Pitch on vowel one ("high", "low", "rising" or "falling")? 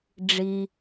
low